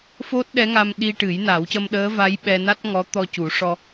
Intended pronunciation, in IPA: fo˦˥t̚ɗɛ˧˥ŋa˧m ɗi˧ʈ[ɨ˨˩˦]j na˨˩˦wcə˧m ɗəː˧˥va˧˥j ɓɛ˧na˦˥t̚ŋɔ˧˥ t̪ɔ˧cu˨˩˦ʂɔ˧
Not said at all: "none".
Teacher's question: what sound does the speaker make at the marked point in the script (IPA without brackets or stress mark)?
ɨ˨˩˦